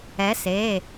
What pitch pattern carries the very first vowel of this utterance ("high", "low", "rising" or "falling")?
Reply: rising